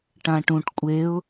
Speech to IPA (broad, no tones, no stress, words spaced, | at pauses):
ʈãʈũʈ kʷʼeʊ̯